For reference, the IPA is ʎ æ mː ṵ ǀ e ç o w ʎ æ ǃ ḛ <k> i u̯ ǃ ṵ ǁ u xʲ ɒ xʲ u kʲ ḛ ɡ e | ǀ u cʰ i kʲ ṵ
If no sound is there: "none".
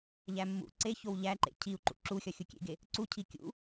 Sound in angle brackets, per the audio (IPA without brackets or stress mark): cʰ